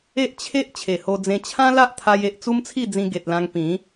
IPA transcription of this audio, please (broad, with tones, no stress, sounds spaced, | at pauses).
e˦ ʔ t͡ɕʰ e˦ ʔ t͡ɕʰ e˨˩ h o˧ d͡z ẽ˧ t͡ɕʰ ã˦ l a˦ ʔ t̪ʰ a˧ j e˨ ʔ t͡s u˦ m t͡sʰ i˥˧ d͡z ĩ˧ ɡ e˨ t̚ l ã˧ ŋ p ĩ˨˦